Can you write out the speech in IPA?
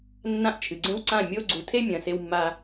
nːã˦ʔt͡ʃʰɨ˨ɡ͡ǀẽ˦wǀã˦˨ mʲo˦ ɡ͡ǀu˨tʰe˦ mʲɐ̃˨se˧wmːa˧

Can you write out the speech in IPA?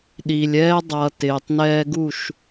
ɗi˨lʲɛː˦ dˤʌː˨ tɪː˨tˤnɛː˦ɡu˦˨ʃ

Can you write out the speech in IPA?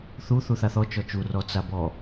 θu θuθaθɔ t͡ʃɔt͡ʃu rɔt͡sabɔ

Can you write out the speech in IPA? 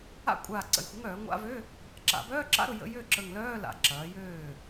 a̰˥˩kʷʼaː˧˩ ǀə̰˧˩˧jxʷə˩˥ŋœː˧˩˧ ŋʷa̰˧˥˧vø˧˥˧ | ǁa̰˧˩˧bœː˧˥˧ǁa̰˧˥˧ɾʊ˥˩ jə̰˧˥˧ jø˥˩ǁə˧˩ŋlœː˧˥˧ la̰˧˩ǁɐː˩˥jøː˥˩

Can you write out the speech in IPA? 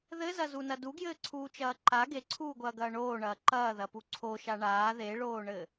ðɘzɐzunɐ duɡjɘːǀʰuːt͡ʃɐː ǃa ɡeǀʰuːɡʷɐːɡɐː ɳoːɳɐː ǃɐːðɐpu ǀʰoʃa ɳaː ðeɭoːɳɘ

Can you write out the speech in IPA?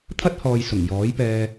t̪ʰɐ˥t̚hɔː˨j sʊ˨˩ŋjɔː˨˥jpɛː˧

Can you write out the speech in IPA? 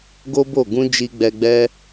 ɡo˦bo˦˨ ɡũ˧ d͡ʒi˧ɡ͡bɛ˧ɡ͡bɛ˦

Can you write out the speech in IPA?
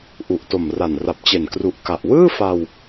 ʔu˨˩ʔto˨˩mra˨˩n ra˨˩p̚t͡ɕe˨˩nkru˨˩ʔ ka˨˩ʔ wɯː˥˩fa˧w

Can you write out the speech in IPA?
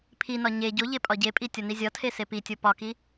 pʰinɒ ɲe ɟo ʎepʼɒɟepʼi tʲɒnizʲɒtʰe sepitʲo pɒki

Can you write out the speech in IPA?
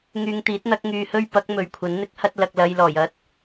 ŋyː˧ŋt̪iː˨˥t̚n̪ɐ˨˥k̚ ŋyː˧hɵ˥ɥpɐ˨˥k̚ mɵ˨ɥkʷʰɐ˨˥n n̪ɪ˨˥k̚ hɐ˥t̚ lɐ˧k̚lɐ˧j lɔː˨˩j ɐ˥t̚

